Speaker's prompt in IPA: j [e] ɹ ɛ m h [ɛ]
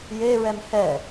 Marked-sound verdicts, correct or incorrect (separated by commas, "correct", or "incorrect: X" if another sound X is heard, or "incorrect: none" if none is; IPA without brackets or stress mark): correct, correct